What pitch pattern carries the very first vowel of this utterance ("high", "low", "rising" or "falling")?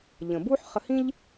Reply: low